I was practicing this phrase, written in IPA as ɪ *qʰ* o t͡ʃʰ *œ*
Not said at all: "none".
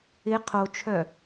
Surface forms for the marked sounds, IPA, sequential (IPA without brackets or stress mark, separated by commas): qʰ, œ